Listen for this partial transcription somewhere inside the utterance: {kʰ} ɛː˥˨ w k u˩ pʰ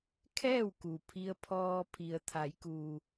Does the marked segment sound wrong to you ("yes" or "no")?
no